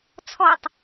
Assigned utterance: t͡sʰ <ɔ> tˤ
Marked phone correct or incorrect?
correct